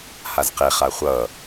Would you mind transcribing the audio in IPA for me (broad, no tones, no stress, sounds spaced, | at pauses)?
h a z q e χ a χʷ ʌ